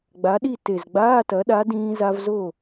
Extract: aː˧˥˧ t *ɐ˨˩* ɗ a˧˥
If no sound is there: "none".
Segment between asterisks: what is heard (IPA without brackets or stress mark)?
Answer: ɐ˩˥